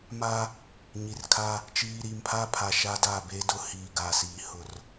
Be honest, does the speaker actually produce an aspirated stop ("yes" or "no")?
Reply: yes